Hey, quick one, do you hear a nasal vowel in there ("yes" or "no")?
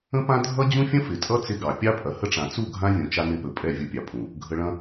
yes